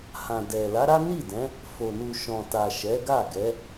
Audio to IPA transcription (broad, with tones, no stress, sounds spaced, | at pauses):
h ã˨ d ɛ˨ l a˨˦ ɾ a˦ n i˦˨ d ɛ̃˨˦ | f o˨ n u˨ ʃ ɔ̃˨ t a˨ ʃ ɛ˨˦ ɡ a˦˨ ɡ ɛ˨˦